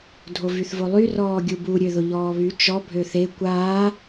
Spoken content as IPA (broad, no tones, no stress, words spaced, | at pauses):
dʱovyθvolˠy rɔːɡʲubu ɾʲøðʊʎɔːβy t͡ʃɔ bʱøθe kʷaː